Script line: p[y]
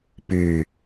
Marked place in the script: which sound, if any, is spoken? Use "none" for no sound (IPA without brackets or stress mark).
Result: y